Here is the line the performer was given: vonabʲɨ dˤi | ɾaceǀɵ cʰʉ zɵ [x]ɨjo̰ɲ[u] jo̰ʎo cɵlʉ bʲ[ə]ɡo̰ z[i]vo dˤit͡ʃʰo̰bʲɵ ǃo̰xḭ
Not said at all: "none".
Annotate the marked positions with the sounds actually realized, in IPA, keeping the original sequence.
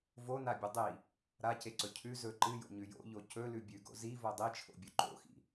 ǃ, ʉ, ʉ, i

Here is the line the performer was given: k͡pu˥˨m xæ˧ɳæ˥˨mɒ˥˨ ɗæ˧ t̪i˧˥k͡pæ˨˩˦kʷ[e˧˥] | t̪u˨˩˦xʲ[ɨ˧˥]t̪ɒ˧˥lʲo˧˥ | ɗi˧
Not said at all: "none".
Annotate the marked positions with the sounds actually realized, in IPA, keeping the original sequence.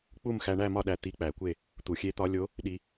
e˥˨, e˧˥

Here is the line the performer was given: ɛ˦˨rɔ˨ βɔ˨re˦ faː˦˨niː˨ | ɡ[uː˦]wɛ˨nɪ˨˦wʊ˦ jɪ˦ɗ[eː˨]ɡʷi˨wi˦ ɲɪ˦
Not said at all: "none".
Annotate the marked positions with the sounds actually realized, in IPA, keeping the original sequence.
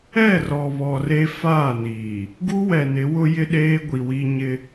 u˦, eː˦

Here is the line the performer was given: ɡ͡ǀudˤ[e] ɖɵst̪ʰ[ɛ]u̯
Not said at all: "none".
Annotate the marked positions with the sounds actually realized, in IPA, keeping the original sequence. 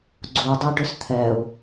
e, ɛ

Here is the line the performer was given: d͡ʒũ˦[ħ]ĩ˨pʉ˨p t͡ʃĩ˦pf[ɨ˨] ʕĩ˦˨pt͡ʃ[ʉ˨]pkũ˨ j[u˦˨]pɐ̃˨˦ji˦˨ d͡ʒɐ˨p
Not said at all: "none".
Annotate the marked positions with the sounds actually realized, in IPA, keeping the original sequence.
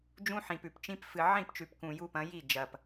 ħ, ɨ˨, ʉ˨, u˦

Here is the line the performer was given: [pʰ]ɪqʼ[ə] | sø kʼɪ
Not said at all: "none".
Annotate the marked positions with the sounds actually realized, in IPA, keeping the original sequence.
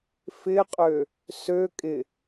f, ø

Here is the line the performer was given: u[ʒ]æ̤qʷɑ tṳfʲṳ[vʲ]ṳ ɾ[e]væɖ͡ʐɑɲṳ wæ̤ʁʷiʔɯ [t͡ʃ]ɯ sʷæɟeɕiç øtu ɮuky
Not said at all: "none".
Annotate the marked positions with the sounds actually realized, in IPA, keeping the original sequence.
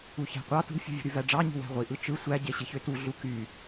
ç, vʲ, y, t͡ʃ

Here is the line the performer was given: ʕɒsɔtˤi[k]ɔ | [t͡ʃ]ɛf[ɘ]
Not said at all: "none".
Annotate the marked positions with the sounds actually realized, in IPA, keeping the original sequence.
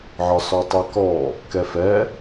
k, k, ɛ

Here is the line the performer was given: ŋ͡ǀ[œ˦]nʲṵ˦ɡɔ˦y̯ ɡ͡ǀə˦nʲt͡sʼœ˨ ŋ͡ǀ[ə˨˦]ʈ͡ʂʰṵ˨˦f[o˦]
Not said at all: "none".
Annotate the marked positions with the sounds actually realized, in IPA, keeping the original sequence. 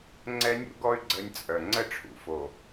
ɛ˦, ə˦˨, o˨

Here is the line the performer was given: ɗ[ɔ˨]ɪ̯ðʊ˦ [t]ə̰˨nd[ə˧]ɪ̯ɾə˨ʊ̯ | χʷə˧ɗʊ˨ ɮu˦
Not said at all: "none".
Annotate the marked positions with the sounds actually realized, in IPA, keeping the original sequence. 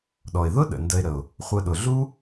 ɔ˨, ɗ, ə˧

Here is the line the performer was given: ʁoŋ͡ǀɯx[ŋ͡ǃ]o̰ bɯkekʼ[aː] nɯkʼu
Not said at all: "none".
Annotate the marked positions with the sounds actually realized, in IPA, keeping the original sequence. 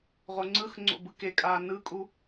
ŋ͡ǀ, aː

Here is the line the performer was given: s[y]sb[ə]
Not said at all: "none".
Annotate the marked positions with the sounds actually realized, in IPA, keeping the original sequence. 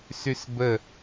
y, ə

